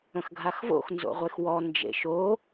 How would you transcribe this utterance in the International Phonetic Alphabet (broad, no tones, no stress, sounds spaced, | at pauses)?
ə̃ x ɡʱ a x v o̰ x n z o̰ ʁʷ e x w ɔ n d͡ʒ ḛ ʃ o